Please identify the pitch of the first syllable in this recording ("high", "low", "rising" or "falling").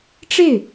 falling